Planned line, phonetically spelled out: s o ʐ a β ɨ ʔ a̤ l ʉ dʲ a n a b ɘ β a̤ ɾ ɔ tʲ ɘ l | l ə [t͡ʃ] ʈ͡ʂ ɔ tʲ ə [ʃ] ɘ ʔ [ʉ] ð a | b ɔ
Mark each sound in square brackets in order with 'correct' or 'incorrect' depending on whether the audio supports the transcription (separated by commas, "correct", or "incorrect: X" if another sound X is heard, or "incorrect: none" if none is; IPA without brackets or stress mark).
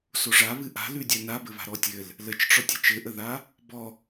correct, incorrect: t͡ʃ, incorrect: ə